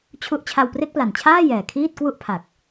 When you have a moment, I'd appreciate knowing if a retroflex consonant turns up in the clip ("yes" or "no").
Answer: no